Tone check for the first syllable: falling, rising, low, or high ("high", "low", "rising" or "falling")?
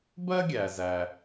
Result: high